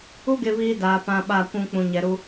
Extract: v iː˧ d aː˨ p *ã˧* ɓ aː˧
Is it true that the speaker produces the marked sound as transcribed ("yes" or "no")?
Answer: yes